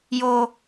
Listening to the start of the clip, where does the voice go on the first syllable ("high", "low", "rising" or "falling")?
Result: high